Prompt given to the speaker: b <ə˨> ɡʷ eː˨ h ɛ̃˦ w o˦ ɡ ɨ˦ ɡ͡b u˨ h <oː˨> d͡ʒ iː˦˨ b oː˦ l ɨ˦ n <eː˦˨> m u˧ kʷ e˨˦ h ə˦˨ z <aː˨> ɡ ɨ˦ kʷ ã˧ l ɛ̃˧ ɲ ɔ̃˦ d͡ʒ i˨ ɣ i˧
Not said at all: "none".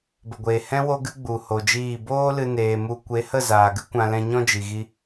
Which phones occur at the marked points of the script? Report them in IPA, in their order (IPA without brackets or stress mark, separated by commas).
ə˨, o˨, eː˧, aː˨